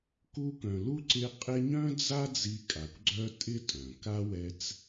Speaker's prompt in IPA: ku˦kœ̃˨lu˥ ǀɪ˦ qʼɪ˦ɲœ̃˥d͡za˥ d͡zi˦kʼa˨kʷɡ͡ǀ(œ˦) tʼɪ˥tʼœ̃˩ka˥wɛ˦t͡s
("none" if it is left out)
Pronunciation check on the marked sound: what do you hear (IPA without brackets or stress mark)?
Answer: œ˥